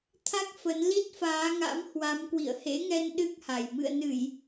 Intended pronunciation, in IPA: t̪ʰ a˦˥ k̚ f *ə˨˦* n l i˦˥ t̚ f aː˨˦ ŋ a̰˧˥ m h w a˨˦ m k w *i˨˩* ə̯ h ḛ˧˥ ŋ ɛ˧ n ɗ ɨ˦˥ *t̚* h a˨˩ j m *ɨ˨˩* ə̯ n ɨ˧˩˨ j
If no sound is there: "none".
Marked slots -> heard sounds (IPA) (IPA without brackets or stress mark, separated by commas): ə˨˦, ḭ˧˨, k̚, ɨ̰˧˨